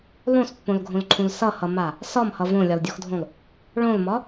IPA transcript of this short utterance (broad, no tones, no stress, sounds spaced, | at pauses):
lˠ õ s pː õ l ɡʱ õ l ǃʰ ũ l s ʌ h ʌ m a | s ɒ m h ʌ v õ lʲ ɒ l dʲ o x dʱ õ lˠ | ɭ õ l m ɒ